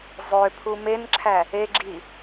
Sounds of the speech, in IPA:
zˤ ø pʰ u m e n ǁʰ æ | e ɡ͡ǁ i

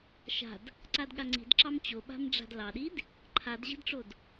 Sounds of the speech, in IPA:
ʃ a̤ d | ǀ a d ɠ a ŋ͡ǀ i̤ d ǁ ɑ m t͡ɕ o ɓ a̤ m ɖ͡ʐ a̤ d l ɑ ɗ i d | ǃʰ a d ʑ i̤ d ʈ͡ʂ o d

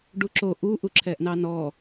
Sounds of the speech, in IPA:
ɖ u ǁ o ʔ u ʔ u ǁʰ ɛ ʔ n ɑ n ɔ

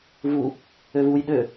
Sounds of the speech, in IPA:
v u | ø v u j ɗ ø

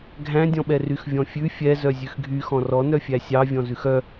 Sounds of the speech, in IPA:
ɡʱ æ̃ dʲ ɔ̃ ɓ ɛ r y x vʲ ɔ̃ fʲ ʉ fʲ ɛ z œ zʲ ʉ x ɡʱ y x ɔ̃ r ɔ n œ fʲ æ sʲ ɑ vʲ ɔ̃ z ʉ x œ

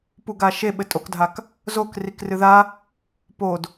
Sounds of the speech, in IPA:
p u ɡ a ʃ e ɓ ɘ tʼ o k dʱ a k | z o k r i k r ɨ ð a | p o d

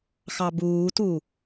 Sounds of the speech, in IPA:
x ɑ b uː t u

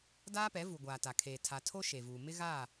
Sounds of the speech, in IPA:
d aː˦ p ɛ˨˦ v u˨ ɡʷ aː˨ t a˨ kʰ eː˨ tʰ a˨ tʰ o˦ ʃ e˨ v uː˨ m ɪ˦ ɣ aː˦˨

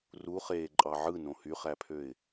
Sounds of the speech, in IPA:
r u χ eː ǃʼ ɑ ʕ ɯ n õ h y χ æ pʰ ø ɪ̯

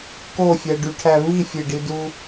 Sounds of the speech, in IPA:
k o fʲ æ ɖ y ʈʰ æ v i fʲ e ɖ i d u

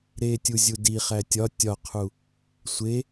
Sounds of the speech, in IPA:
ɾ e tʲ u zʲ u d i χ æ tʲ ɒ tʲ ɒ qʰ u | sʷ e

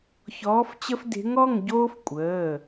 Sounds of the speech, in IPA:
ç ɔː˧˥ f t͡ɕ ə˥ f d e̤˧˥ ŋ ɔ˧˥˧ ŋ ɟ oː˥ f kʷʼ əː˩˧˩

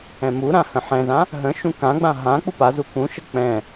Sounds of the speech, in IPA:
ɛ̃ m u ɾ ã h ə̃ ħ ɛ̃ z ã | ɦ ə̃ ʃ ũ k ã ɡ͡b ã ɦ ã k͡p u p a z u k ũ ʃ ə k͡p ɛ̃

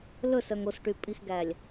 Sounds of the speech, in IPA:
l ɵ s œ ŋ o s ʈ y pʼ i x ɡ æ lʲ

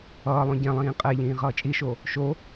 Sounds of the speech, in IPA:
ʌː lˠ õ ɟ ɛ̃ lˠ ĩː qʼ ɛ ʎ ĩː ʁ ʌː t͡ʃʼ i ʃ o | ʃ o

